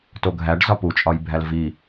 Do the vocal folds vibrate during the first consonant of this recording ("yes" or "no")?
no